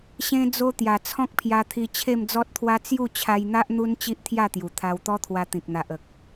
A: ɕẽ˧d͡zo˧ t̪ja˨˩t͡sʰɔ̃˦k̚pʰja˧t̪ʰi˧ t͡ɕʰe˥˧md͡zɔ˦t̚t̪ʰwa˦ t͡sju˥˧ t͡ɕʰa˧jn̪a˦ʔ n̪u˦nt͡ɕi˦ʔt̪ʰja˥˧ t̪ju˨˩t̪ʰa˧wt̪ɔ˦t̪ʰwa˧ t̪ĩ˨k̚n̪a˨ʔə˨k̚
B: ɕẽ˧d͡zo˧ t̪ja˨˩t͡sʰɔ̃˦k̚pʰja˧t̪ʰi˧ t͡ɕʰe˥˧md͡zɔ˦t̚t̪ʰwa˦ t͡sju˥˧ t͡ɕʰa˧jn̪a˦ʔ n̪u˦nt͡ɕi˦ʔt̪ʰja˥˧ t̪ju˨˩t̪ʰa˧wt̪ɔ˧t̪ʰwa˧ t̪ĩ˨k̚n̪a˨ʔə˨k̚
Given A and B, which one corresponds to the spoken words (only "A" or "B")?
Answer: A